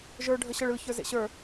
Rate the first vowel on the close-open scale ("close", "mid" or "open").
mid